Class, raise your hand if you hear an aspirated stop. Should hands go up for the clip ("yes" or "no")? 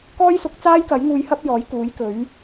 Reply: no